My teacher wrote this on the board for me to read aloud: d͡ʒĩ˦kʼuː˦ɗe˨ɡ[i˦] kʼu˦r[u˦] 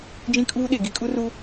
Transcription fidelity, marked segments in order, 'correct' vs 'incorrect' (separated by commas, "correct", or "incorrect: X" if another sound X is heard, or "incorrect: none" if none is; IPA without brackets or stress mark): correct, correct